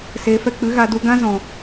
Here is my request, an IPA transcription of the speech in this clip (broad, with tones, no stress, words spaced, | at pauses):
seː˨fɛ˧ k͡pɨ˨˦ɣa˧du˧ ɡã˦zɔ̃˨